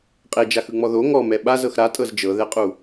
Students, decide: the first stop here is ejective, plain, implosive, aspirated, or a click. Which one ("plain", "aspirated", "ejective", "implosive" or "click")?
ejective